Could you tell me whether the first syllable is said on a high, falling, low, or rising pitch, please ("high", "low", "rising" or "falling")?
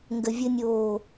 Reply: low